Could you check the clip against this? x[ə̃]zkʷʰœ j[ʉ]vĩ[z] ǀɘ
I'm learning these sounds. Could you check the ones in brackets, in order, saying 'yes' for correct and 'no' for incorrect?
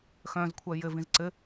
no, no, yes

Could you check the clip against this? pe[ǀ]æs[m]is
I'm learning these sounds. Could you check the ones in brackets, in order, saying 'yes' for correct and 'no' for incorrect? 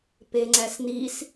no, no

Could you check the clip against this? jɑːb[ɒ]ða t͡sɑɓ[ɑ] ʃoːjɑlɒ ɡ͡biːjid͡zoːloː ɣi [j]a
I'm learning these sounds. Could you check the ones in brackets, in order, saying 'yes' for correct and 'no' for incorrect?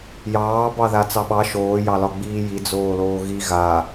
no, yes, no

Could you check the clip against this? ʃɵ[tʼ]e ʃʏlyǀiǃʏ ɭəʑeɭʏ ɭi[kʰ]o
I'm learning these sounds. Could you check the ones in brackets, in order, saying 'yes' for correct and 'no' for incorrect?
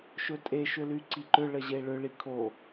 yes, yes

